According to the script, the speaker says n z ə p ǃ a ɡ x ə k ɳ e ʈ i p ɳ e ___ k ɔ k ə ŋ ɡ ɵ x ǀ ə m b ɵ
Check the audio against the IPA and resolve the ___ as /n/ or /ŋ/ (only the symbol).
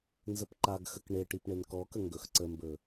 n